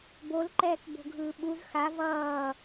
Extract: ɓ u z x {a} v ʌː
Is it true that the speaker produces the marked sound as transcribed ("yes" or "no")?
yes